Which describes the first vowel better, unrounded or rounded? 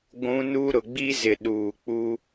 rounded